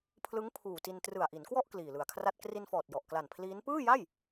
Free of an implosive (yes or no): yes